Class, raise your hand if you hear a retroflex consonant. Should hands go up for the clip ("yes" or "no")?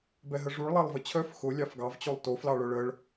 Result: yes